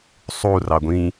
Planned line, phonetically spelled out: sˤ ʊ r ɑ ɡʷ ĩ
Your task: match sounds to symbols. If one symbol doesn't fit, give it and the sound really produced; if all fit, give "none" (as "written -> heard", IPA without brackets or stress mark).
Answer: ʊ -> u